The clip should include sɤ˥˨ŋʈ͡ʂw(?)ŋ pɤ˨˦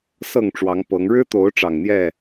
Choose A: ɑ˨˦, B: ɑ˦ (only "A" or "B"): A